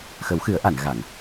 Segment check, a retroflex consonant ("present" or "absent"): absent